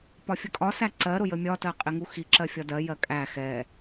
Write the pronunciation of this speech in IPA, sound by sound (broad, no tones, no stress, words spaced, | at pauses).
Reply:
pɒfʲəkʼɒ sæǀɜɾʊ jəmʲɒtɜ qʼɪŋuxi ǁɜfʲɒdɜ jɜkʼæ xɛ